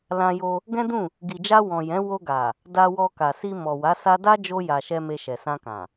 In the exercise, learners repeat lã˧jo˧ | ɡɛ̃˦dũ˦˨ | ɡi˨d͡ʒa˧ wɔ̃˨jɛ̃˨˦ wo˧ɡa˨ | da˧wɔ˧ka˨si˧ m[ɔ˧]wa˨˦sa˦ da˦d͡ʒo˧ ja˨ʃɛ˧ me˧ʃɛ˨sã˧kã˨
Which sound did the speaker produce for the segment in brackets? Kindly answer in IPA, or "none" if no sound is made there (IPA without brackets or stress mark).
ɔ˨